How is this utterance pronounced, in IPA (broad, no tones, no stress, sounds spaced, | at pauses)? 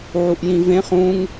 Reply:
ʕ u ʔ j ĩ v ẽ χ ũ ŋ